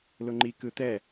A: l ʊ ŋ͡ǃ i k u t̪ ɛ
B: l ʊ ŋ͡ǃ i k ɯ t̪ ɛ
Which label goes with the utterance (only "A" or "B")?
B